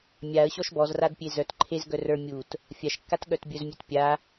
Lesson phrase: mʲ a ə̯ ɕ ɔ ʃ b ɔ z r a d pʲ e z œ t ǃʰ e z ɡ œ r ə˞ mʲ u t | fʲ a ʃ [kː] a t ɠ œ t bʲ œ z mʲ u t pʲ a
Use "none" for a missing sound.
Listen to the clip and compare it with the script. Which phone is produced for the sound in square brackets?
kː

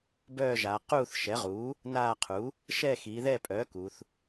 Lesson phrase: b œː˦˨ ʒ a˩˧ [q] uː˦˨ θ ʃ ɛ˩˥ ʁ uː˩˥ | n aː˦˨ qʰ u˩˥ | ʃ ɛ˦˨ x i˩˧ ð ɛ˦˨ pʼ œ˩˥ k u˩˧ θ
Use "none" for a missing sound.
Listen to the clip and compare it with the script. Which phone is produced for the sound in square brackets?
q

